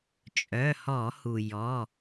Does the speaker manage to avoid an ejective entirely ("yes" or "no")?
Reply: no